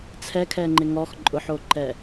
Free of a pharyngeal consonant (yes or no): no